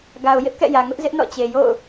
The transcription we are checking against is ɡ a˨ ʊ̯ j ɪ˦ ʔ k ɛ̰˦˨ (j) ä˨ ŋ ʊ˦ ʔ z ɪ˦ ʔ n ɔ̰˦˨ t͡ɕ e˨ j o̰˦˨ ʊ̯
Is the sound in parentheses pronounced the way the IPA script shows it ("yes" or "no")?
yes